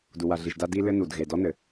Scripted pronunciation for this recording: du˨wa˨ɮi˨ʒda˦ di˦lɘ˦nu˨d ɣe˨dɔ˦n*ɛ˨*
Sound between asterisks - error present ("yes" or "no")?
yes